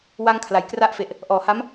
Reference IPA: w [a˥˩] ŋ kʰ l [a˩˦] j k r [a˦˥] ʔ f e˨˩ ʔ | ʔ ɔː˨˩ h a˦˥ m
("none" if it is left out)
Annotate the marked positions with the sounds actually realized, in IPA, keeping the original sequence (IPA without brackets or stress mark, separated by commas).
a˧, a˩˦, a˦˥